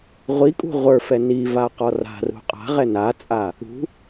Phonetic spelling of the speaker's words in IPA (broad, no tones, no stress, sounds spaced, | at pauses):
ʁʷ i kʼ ṳ ʁʷ ə˞ f ɛ n i v a q ɔ r a̤ r ṳ qʼ a̤ ʁ ɛ n a t͡sʼ a | ṳ